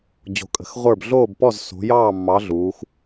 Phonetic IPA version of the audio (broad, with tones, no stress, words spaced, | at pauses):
d͡ʑo̤˨˦kʼə̤˨˦x ʁʷə˞˥˨b ɮoː˥˨bpɔ˥˨zso̤˨˦ jɑː˥˨mːɑ˨˦ ɮuː˨˦x